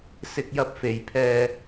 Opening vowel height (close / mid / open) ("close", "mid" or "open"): close